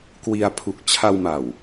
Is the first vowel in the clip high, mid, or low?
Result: high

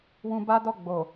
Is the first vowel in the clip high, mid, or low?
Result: high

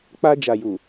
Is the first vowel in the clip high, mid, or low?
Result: low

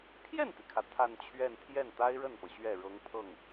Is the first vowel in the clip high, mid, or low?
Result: mid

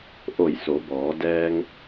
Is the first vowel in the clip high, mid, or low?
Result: mid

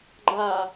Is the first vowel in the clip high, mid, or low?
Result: low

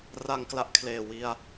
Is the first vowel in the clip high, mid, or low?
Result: low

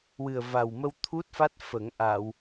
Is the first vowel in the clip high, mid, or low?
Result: high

